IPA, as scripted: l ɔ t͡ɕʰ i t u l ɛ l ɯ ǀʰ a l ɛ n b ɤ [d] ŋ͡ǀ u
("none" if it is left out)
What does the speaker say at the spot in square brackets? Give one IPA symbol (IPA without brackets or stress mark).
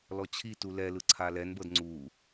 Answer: d